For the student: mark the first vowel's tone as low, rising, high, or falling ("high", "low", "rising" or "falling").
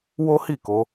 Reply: high